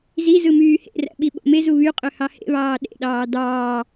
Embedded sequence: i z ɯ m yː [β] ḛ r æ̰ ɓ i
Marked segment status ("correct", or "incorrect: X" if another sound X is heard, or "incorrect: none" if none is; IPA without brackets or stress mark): incorrect: h